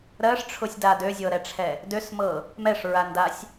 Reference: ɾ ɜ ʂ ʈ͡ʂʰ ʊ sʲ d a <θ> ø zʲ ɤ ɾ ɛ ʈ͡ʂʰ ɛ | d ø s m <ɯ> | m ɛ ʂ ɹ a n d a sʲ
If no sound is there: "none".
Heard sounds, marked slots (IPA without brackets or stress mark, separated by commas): d, ɤ